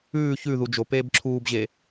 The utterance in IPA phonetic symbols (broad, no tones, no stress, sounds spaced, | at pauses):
ʉː ç ʉ ð u d͡ʒ o p eː b ǁʰ uː b ʑ e